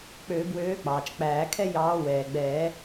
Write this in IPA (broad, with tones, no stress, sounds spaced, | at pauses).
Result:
k͡p øː˨˩˦ b w øː˨˦ k͡p ɑː˩ t͡ʃ k͡p æː˨˩˦ kʰ ɛ˥ j ɑː˨˦ w ɛː˩ ɡ͡b ɛː˨˩˦